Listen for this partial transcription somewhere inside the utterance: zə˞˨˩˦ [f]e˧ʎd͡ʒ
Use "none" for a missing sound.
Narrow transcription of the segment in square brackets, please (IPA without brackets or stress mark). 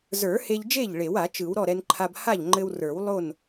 h